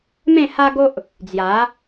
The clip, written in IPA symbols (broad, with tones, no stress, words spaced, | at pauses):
mẽ˥˧ha˦ɡo˦ʔ | d͡zja˨˦